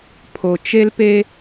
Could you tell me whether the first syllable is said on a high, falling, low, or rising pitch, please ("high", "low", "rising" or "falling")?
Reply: low